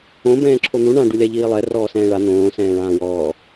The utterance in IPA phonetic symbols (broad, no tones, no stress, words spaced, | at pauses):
õ bɛ̃ːǁʰon̪u ɳã ɖulʲaʎiːlˠɛ rɔːsɛ̃ːɭa n̪õː sɛ̃ːɭãːwɔː